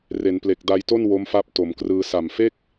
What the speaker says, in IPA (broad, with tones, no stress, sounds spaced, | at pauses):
r e˩˦ n p l e˨˩ k̚ d a˧ j t o˥˩ n w o˦˥ m f a˦˥ p̚ t o˩˦ m k r ɯː˧ s a˨˩ m f e˥˩ k̚